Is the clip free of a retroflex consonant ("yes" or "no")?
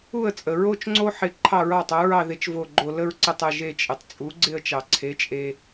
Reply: yes